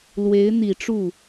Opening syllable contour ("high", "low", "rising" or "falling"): rising